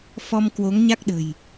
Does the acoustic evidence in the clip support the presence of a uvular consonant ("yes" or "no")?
no